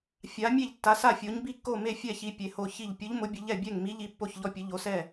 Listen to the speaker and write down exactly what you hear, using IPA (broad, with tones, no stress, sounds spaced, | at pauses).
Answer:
fʲ a˨˥ mʲ e˥˩ ʎ tː a˨˥ s a˥˩ fʲ o˨˥ ɲ b i˥˩ kː o˥˩ m e˥˩ fʲ ɛ˥˩ ç i˨˥ pʲ e˨˥ h o˥˩ ç i˥˩ ʎ pʲ ʊ˨˥ ʎ m ʊ˨˥ bʲ ʊ˨˥ ʎ ɛ˥˩ bʲ ɛ˥˩ ŋ m i˨˥ ʎ i˨˥ pː o˥˩ ç ʎ ɔ˥˩ pʲ ʊ˨˥ ʎ o˨˥ s ɛ˥˩